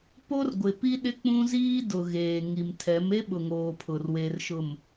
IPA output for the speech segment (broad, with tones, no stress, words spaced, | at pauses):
po˦rɡʷɪ˨pi˦ ɗɪ˦k͡pũ˦ziː˦ dʊ˨ɣeː˨ŋi˨mtʰɛ˨˦m e˦ɓʊ˨ŋoː˨ pʰʊ˨rwe˨rʃʊ˨m